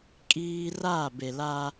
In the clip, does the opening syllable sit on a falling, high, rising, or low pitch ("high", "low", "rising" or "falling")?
high